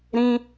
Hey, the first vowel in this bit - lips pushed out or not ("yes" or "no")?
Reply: no